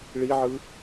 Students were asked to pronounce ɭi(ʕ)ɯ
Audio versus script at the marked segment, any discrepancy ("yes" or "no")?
no